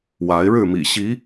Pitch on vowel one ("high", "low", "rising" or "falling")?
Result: rising